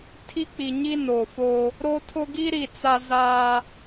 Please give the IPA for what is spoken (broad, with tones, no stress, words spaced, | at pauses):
tʰi˦k͡pi˨ɲi˦ no˨fo˦ | ɾo˦tʰʊ˦ ɡi˦ɾi˨ t͡sa˦za˦